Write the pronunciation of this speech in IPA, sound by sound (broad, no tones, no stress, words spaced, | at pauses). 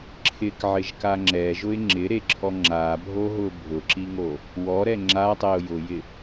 ǁʰɪkʕɪʒka ŋ͡ǁɛʒʊɪ̯ ŋ͡ǁɪɾeǁʰɔ ŋ͡ǁabʱoɦʊ bʱʊǁiŋo | wɔɾɛ ŋ͡ǁatˤeʊ̯ jʊjɪ